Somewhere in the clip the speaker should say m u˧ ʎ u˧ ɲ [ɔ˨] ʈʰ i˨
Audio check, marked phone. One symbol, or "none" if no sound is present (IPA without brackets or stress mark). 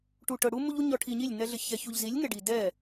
ɔ˨